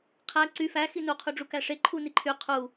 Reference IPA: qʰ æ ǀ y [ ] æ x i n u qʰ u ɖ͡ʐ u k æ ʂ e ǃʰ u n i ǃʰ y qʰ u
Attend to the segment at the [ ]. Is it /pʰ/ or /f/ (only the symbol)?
f